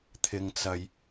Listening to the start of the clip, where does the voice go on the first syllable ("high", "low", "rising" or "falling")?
low